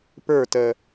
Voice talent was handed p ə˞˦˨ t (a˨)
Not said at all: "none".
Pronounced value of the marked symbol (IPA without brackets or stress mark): ə˨